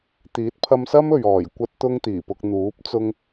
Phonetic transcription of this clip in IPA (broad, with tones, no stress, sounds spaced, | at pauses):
t̪ iː˨˥ t̚ pʰ ɐ˧ m s ɐ˥ m ɵ˨ ɥ ɔː˨˩ j kʷ ɐ˧ t̚ t̪ ʊ˧ ŋ t̪ iː˨˩ p ʊ˧ k̚ n̪ uː˨˥ p̚ t͡s ʊ˧ ŋ